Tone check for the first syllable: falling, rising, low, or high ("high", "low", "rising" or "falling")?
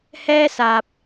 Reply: high